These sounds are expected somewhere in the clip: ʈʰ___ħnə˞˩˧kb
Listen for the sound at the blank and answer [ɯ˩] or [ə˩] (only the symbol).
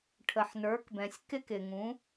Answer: ə˩